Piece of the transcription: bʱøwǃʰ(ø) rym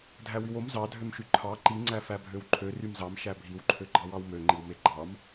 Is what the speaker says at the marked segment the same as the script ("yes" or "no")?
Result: yes